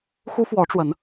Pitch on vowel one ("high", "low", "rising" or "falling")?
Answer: high